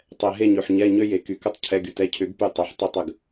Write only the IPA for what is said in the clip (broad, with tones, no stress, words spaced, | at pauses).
tˤɛ˩ɦe˧˩ɲø˩ħ ɲɛ˩˧˩ ɲø˧je˩ ky˩kə˧˩tˤ cʰɛ˩˧˩ɡy˩t ɛ˧cʰʏ˨˩˦ɡpy˧˩ tˤø˩ħtˤe˧˩tˤə˩ɡ